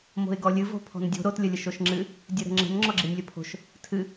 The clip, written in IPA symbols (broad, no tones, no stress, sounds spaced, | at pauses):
m o̤ ɪ̯ ɡ ɔ lʲ ɨ v o̤ pʰ ɔ̤ n dʲ o̤ ɾ o t lʲ ə lʲ ə ʃ o ʃ ŋ͡ǁ ɨ | dʲ ɨ ɾ ə̤ ŋ͡ǁ ə̤ n ŋ͡ǁ ɔ ɡ͡ǁ ɨ nʲ lʲ ə pʰ o̤ ʃ | tʰ ɨ